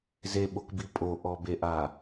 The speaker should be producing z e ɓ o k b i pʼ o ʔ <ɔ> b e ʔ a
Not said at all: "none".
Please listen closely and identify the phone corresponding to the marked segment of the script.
ɔ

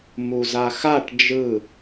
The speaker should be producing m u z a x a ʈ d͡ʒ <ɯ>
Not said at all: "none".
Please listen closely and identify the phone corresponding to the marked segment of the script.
ɯ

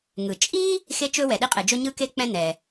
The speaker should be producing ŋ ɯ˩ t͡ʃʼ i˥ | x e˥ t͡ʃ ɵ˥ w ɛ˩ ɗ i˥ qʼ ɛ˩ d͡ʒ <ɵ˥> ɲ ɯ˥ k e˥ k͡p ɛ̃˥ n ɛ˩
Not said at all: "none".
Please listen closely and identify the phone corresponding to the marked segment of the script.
ɵ˥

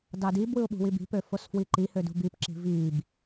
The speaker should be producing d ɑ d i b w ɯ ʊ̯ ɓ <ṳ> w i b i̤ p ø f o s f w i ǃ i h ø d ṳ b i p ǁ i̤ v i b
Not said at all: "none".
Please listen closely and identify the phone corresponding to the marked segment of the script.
ṳ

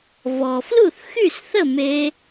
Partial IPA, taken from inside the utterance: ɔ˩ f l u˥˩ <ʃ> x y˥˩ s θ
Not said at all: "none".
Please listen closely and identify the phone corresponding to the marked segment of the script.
θ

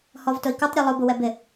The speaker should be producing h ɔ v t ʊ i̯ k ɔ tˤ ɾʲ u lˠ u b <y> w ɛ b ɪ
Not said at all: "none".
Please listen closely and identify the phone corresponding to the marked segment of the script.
u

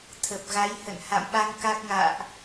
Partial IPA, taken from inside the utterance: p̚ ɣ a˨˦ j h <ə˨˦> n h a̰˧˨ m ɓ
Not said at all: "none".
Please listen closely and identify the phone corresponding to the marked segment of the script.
ə̰˧˨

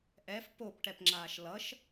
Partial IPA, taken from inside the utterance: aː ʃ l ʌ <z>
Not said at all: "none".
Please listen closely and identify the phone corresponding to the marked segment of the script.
ʃ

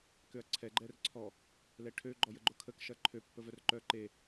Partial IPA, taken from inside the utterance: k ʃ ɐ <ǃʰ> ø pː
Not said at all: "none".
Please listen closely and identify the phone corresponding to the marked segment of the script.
ǃʰ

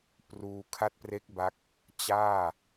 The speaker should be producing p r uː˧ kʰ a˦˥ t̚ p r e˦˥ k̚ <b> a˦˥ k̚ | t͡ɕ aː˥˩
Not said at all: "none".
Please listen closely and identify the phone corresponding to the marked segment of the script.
b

